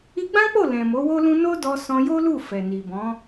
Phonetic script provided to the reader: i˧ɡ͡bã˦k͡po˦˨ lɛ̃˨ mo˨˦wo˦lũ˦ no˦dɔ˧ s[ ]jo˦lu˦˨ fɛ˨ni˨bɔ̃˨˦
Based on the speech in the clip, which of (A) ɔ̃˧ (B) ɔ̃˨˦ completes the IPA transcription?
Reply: A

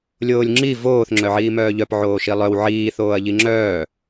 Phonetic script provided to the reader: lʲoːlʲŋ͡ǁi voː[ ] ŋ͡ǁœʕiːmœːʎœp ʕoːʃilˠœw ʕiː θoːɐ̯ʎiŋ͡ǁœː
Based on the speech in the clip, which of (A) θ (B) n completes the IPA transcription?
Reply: A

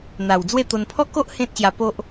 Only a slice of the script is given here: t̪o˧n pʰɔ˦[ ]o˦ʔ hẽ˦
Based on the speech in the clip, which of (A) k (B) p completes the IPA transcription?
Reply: A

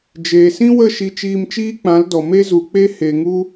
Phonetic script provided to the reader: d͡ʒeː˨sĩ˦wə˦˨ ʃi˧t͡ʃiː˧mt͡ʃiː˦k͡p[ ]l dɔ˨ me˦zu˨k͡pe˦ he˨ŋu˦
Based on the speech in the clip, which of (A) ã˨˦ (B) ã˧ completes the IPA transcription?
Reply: A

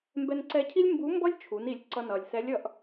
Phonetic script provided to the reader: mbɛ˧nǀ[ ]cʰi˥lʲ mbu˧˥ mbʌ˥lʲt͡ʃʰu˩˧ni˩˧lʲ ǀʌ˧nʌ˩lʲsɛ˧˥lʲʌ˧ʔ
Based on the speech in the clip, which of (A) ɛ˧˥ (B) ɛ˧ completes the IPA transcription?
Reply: B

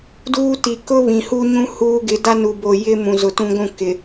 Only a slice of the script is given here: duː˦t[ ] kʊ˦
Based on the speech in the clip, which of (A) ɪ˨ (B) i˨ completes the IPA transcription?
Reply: B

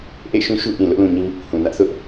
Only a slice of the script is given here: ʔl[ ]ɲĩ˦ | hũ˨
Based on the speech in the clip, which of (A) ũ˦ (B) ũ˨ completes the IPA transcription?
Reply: B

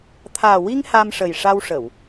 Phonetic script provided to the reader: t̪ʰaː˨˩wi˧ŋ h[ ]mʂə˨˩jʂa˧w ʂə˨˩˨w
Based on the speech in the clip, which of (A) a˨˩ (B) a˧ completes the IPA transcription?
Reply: B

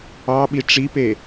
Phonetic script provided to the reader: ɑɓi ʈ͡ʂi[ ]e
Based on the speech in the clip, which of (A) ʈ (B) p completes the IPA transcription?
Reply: B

